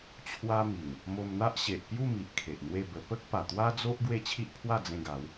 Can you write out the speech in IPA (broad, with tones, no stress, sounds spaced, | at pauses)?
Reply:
t͡ɕʰ w a˦ m i˨˩ ŋ | m o˧ m n̪ a˦ ʔ ɕ e˨ ʔ p j u˥˧ m i˨ ʔ kʰ e˨ ʔ n̪ w e˥˧ b ə˧ p ə˦ k̚ p a˨˩ t̪ w a˦ d͡z o˦ ʔ ɡ w e˦ t͡ɕʰ i˦ ʔ pʰ w a˥˧ d͡z ẽ˧ ɡ a˨˦ w